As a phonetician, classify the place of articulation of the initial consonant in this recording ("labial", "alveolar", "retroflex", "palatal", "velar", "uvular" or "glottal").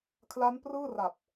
velar